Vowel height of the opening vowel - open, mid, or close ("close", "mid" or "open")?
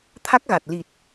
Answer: open